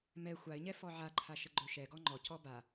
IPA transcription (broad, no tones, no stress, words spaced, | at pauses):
mɛ xʷaɪ̯ɲɛ fɔʕaǃʰa ʃəɡ͡ǃɵʃɛɡɔ ŋ͡ǃɔcɔ ba